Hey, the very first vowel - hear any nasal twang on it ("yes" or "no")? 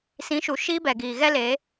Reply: yes